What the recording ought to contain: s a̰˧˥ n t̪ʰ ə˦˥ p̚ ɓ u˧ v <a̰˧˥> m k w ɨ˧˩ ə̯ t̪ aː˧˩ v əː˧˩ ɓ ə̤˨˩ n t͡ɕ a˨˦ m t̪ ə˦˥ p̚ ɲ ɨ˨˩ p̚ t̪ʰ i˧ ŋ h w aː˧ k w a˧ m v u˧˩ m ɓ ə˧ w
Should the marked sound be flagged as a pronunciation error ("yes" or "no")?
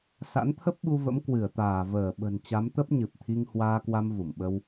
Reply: yes